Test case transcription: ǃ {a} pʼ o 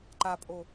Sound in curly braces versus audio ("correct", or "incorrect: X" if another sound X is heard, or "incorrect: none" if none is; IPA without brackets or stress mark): correct